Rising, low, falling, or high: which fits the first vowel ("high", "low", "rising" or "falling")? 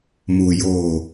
low